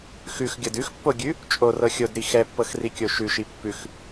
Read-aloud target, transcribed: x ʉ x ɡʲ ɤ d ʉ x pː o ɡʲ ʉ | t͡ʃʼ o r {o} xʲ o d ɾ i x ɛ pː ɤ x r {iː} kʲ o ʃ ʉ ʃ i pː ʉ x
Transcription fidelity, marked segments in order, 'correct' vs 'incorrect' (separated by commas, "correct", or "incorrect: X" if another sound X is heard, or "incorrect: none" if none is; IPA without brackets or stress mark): incorrect: ɤ, incorrect: i